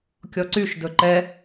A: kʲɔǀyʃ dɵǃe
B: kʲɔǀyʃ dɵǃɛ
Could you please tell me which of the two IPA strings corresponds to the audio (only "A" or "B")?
B